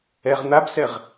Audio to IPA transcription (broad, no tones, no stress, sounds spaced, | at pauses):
ɛ ʁ n̪ a b s ɛ ʁ